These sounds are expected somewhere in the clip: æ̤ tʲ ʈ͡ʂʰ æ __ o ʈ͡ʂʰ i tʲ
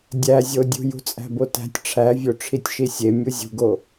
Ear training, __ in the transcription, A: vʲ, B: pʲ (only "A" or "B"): A